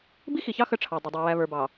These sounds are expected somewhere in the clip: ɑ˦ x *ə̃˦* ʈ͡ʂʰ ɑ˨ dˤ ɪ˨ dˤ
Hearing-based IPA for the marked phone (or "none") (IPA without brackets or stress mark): ə˦